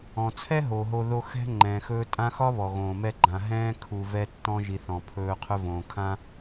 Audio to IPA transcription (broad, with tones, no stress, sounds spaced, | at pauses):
ɔ̃˩ t͡sʰ ɛ˥ ɦ o˩ ɦ o˨ ð o˦ x ɛ̤˥ ŋ͡ǃ ɛ̃ː˩ x ɵː˦ tʼ ã˥ x ɒ˥ β ɔ˩ ɣ õː˩ m ɛ˦ ɡ͡ǃ ã˨ ɦ ɛ̃ː˦ kʰ u˨ v ɛ˦ tː ɔ̃˥ ʒ i˨ θ ɔ̃˩ pʰ ɵː˦ qʰ ɵ˦ v õː˩ kʰ ã˥